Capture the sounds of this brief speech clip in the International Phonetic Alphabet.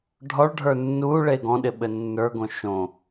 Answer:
ɖʱɔɭɖʱə˞ nːu ɭeɡɔ̃ɗɪ ɓɘnːə˞ɡõ ʃõ

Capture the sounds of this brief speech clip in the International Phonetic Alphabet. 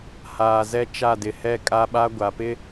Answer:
haː˨zɛ˦t͡ʃa˦˨dɪ˨ hɛ˦˨kʼa˦ɓa˦ ɡʷa˨pɪ˦

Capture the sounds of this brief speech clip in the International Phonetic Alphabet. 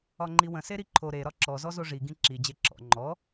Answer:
ɒŋ͡ǃiwə̃ seɾiǃʰo ɾe ɾɒǁɔ zɔzoʐi ɡĩǁi d͡ʑeǁɔ̰ ŋ͡ǃɔ

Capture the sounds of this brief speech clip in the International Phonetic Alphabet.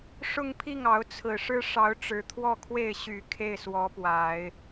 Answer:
ʂʊ˥˧ŋpʰi˥˩ŋɑ˧˥ʊ̯ t͡sʰɹ̩˨˩ʂɻ̩˥ʂɑ˧˥ʊ̯ ʈ͡ʂɻ̩˧˥t̪ʰwɔ˥˧kʰwe˥˩ɪ̯ ɕy˨˩ kʰe˥˩ɪ̯swɔ˧˥pwa˨˩˦ɪ̯

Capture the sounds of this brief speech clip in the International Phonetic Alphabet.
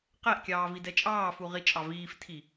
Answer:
qɛʔkʲɑː vidɛt͡ʃʼɑːfu ʁit͡ʃʼɑviːftʰi

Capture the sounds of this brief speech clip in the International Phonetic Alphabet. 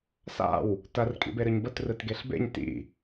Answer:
sa̰w | tɐr kʼḭbeɾɨɲbət rɯtɡeɬbḛɲ tḭ

